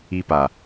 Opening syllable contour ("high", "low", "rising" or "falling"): high